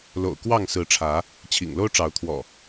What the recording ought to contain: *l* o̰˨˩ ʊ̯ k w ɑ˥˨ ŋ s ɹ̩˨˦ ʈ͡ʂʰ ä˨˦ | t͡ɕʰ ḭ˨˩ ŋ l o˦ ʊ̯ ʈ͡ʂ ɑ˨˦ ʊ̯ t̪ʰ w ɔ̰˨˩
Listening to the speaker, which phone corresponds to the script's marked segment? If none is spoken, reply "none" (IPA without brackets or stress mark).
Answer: l